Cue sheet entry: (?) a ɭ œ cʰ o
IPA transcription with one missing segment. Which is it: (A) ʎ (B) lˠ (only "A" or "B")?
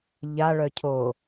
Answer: A